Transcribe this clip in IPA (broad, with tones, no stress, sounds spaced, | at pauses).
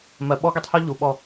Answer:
m ɜ˨ ɓ ɔ˦ ɡ i˦ tˤ h ɔ˦ ʎ u˨ ɓ ɔ˦˨